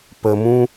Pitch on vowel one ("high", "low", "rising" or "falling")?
low